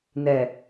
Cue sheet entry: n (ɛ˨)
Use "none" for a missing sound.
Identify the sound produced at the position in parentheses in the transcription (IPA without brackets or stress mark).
ɛ˨